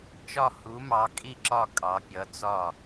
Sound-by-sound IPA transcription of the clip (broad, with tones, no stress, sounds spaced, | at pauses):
t͡ʃ ɒ˦˨ h u˨˦ m ɑ˨˦ kʼ i˦˨ ǁ ɒ˦˨ kʼ ɑ˨˦ pʲ ʌ˨˦ t͡s ɒ˦˨